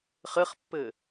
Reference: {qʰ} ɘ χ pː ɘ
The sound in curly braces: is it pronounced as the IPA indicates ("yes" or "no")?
no